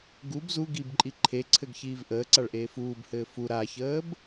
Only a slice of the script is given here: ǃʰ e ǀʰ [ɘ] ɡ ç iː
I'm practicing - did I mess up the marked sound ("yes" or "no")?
no